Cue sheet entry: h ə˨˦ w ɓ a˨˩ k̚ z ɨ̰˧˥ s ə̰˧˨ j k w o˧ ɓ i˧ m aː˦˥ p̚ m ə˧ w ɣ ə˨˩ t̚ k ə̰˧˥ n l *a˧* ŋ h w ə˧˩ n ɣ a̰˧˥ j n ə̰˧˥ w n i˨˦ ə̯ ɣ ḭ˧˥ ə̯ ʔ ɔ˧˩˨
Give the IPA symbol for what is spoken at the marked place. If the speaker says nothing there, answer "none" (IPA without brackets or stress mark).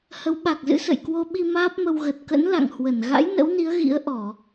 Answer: a̰˧˨